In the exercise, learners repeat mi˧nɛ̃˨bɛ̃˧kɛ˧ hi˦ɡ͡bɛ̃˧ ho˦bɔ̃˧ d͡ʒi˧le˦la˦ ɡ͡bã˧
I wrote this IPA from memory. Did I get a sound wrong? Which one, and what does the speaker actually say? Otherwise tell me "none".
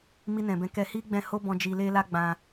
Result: none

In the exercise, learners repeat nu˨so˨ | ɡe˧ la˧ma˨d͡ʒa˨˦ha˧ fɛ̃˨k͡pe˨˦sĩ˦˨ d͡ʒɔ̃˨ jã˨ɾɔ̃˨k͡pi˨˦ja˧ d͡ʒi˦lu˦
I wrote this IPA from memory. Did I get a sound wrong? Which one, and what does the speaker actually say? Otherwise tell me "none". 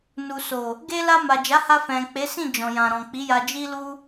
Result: none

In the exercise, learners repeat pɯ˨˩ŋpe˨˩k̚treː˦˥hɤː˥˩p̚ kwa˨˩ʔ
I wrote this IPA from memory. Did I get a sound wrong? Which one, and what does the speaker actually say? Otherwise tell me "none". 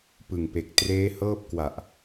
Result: none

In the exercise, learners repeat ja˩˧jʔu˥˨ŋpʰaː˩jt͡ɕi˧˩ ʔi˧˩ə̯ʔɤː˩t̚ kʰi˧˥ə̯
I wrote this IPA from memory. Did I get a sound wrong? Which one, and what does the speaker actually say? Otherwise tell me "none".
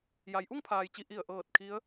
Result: ɤː˩ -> ɤː˧˩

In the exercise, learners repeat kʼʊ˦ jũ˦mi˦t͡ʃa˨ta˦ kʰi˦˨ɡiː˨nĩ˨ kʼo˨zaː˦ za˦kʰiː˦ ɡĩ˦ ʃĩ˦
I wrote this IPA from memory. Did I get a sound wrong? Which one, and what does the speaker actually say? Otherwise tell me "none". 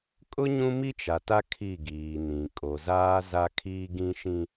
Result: j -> ɲ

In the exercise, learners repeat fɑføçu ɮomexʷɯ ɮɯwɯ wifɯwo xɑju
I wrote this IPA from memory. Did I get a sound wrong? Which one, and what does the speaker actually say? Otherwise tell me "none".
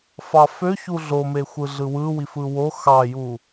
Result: none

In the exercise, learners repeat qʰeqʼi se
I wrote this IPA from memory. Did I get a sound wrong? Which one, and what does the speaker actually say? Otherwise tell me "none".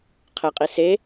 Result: none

